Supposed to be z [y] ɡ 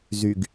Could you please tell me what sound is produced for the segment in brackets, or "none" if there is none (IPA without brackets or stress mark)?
y